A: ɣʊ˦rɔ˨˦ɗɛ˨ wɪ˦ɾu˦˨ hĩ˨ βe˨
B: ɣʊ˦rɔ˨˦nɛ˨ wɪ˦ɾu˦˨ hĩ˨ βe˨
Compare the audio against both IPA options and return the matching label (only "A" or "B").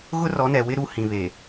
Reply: B